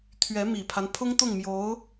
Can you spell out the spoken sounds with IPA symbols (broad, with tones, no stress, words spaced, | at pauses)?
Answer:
t̪ʰɥɛ˧˥mi˨˩pʰa˦n pʰʊ˥ŋt̪ʊ˥˩ŋmjo˧˥ʊ̯